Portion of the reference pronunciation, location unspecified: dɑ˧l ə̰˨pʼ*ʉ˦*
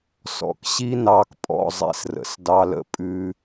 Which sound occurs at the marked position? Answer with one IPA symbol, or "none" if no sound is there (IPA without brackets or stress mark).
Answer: ʉ˦